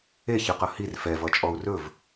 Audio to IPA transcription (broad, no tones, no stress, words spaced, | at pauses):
eçɯqʌ hir fɛvʌt͡ʃʼɔu̯ rɵv